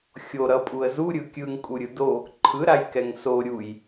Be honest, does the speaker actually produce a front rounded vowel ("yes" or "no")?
no